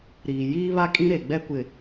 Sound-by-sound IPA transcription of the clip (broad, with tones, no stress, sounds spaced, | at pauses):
ɾ iː˨ j iː˦ β a˦ kʼ ĩ˦ ɾ e˨ ɡ͡b ɛ˦ kʷ ɪ˨